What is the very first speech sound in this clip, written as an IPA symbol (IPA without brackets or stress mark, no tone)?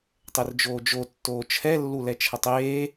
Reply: tˤ